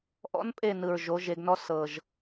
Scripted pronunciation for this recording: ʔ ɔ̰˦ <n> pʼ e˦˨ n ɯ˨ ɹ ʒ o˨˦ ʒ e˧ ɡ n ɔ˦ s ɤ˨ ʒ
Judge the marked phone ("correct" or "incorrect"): correct